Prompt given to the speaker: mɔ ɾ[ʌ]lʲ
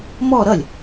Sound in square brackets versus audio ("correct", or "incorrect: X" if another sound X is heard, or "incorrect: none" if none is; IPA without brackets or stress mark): correct